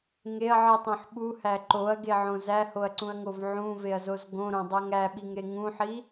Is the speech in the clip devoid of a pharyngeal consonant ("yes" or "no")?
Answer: no